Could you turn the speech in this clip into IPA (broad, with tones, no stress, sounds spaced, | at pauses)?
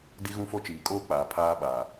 d i˦ ɣ ũ˦ f o˦ t͡ʃ iː˨ kʼ oː˦ k͡p aː˨ pʰ aː˦ ɓ aː˨